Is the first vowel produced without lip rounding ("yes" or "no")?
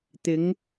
yes